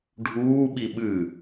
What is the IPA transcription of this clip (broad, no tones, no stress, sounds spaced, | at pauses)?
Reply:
ɖʱ uː ɓ i ɓ ɨ